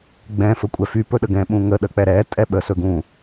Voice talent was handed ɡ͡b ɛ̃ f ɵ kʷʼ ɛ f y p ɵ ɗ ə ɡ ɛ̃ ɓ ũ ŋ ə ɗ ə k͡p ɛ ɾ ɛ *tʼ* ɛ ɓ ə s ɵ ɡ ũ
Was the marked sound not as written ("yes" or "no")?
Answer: no